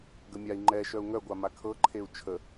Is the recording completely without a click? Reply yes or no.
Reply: no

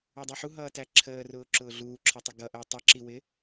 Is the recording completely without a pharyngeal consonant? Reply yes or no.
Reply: no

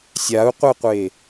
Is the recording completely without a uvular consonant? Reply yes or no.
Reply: no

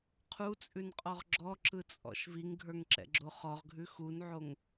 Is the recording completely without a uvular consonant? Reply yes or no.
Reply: no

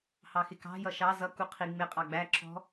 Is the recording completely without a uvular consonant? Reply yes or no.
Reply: no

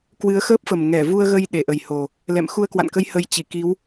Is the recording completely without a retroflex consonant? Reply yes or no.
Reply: yes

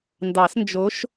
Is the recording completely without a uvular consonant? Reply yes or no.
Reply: yes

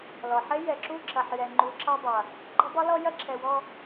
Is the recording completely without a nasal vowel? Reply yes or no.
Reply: yes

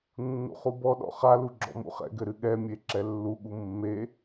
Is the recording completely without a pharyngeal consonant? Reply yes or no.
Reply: yes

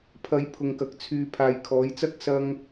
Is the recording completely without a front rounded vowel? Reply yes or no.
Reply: no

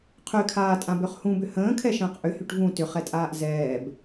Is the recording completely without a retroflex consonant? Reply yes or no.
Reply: no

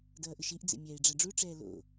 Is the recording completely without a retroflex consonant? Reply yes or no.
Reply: no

